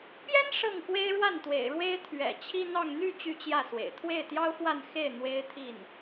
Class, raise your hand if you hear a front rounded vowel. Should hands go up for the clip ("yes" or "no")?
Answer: yes